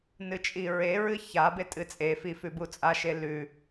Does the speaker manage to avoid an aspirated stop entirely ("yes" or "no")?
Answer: yes